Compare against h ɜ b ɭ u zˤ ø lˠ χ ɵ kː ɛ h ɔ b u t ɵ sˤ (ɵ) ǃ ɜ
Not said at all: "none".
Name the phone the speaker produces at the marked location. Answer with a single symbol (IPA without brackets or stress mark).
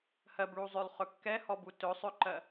ø